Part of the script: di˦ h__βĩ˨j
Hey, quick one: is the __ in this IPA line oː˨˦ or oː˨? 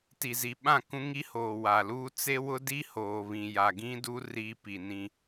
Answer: oː˨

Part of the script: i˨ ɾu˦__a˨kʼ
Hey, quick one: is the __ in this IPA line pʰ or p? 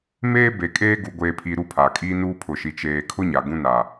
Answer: pʰ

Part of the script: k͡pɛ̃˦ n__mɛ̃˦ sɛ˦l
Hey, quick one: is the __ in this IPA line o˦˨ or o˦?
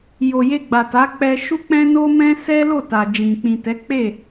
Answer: o˦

